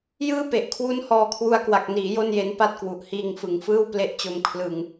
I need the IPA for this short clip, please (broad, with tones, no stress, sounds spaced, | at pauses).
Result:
j ɯː˥˩ p e˨˩ ʔ kʰ w u˦˥ n h ɔː˧ kʰ w u˧ a̯ k w a˨˩ k̚ n iː˩˦ j o˥˩ n j e˦˥ n p a˥˩ t̚ k w u˨˩ ʔ h iː˧ ŋ f ɯ˨˩ ŋ f ɯː˥˩ w p l e˦˥ ʔ t͡ɕ o˧ m kʰ l ɯ˧ ŋ